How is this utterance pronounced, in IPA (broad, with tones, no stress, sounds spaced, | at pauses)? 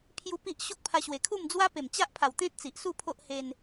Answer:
pʰ j u˧ p i˦ ʔ ɕ o˦ k̚ pʰ a˧ ɕ w e˨˩ kʰ u˥˧ m d͡z w a˦ p e˨˩ m t͡ɕ a˦ ʔ pʰ a˨˩ w t̪ ẽ˦ t̚ t͡s i˨ ʔ s u˥˧ pʰ o˦ ʔ h e˧ n